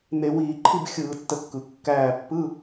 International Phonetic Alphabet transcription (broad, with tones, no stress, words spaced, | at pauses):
n̪e˧˩˧wiː˧˩˧ ǃʰi˥˨bxʲɯː˧˩˧tːə˧˩kːɯ˩ kːæː˧˩pːɯ˧˥˧